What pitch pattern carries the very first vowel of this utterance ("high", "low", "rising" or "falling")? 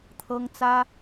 high